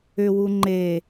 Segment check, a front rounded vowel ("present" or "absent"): present